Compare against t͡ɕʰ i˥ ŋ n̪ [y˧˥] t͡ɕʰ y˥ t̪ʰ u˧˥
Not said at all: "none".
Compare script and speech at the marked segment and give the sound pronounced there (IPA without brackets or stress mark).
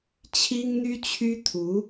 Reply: y˥